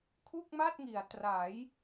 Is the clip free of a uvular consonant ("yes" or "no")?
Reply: yes